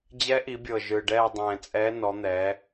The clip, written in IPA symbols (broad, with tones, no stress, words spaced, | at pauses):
d͡ʑɛ˧˥ʔi˩˧bʲɤ˨˩ ʒɯ˨˩ɖɛː˦˨dˤɛ̃ː˨˩t͡sʼɛː˧˥ nɔ˩˧n̪ɛː˩˧